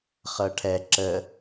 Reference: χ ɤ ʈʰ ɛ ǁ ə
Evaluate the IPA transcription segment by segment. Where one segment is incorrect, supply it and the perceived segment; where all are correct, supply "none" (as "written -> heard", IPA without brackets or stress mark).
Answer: none